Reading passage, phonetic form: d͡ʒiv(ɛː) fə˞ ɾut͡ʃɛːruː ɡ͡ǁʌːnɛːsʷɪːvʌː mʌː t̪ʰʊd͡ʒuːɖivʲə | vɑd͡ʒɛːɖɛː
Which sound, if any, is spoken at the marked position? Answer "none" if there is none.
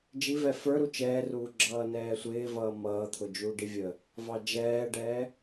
ɛ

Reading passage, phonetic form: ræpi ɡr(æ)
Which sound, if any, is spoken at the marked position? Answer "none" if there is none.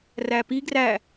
æ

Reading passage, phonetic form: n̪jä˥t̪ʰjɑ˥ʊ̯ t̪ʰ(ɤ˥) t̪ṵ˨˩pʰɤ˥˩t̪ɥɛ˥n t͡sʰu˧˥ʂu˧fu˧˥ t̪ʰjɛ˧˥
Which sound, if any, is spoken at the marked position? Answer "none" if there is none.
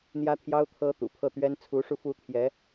ɤ˥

